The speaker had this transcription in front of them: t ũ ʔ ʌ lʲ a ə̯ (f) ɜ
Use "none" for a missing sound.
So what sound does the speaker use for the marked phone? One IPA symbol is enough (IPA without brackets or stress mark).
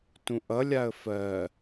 f